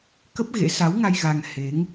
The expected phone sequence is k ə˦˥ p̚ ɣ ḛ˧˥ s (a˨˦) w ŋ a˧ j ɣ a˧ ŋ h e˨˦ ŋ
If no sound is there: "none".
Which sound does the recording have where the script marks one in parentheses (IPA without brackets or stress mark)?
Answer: a˨˦